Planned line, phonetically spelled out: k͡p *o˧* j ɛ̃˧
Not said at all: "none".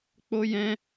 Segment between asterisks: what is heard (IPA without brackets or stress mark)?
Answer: o˧